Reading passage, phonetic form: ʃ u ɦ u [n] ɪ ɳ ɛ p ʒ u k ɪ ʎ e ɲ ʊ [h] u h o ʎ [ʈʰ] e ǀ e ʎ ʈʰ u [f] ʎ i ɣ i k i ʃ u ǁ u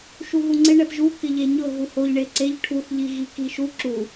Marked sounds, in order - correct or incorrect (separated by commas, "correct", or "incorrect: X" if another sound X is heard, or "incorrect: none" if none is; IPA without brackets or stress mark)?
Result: incorrect: ŋ͡ǀ, incorrect: ɦ, incorrect: ɳ, incorrect: θ